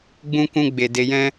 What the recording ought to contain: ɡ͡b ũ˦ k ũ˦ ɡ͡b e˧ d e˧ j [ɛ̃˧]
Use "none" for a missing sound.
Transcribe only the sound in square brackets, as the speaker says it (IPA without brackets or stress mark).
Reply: ɛ̃˦